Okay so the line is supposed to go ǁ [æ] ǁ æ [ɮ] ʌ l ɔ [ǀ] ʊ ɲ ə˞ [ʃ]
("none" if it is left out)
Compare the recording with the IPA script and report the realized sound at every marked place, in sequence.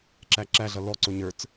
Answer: æ, ɮ, ǀ, t͡s

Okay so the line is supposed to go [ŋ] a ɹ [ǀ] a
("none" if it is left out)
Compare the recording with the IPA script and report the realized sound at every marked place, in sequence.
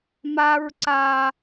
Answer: m, ǀ

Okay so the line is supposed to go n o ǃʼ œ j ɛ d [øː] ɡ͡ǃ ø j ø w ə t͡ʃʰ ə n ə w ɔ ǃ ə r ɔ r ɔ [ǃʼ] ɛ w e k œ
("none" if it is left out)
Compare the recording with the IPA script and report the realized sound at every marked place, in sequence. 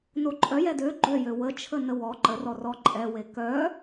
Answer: ø, ǃʼ

